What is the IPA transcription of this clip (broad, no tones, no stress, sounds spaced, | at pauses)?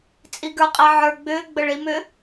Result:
t͡sʼ i ɡ ə˞ qʼ ɛ ʕ ə˞ ɡ͡b ʏː ɡ͡b ə ɭ i m ʏ